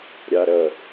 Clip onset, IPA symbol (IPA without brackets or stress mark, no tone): ɾʲ